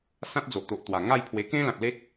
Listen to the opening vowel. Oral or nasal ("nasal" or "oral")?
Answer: nasal